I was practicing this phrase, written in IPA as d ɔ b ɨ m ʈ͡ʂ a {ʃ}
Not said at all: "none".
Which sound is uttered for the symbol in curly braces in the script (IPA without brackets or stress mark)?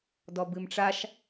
ʃ